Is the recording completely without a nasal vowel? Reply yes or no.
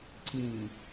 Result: no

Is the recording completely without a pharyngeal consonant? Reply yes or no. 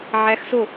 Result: no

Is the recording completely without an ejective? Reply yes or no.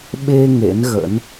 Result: yes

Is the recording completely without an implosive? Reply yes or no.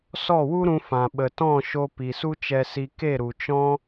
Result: no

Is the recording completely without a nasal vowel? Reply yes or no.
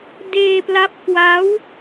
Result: yes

